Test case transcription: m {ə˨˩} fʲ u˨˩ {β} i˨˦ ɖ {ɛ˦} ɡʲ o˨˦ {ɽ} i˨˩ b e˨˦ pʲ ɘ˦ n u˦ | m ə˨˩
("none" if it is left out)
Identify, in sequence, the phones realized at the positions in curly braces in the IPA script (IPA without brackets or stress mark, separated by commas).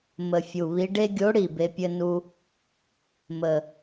ə˨˩, β, e˦, ɽ